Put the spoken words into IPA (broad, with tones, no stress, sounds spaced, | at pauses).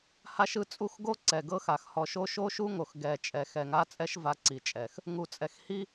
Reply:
h a˦ ʃ ɯ˦ t͡sʼ u˦ x ɡ o˦ ǀ ɛ˨ ɡ ɤ˦ x a˨ x h ɔ˨ ʃ o˦ ʃ o˦ ʃ u˦ ŋ o˨ x ɡ ɛ˨ t͡ʃʼ ɛ˨ x ɛ˨ ŋ a˦ t͡sʼ ɛ˦ ʃ v a˨˦ ǀ i˨ t͡ʃʼ ɛ˨ x | ŋ u˨ t͡sʼ ɛ˨ x h i˦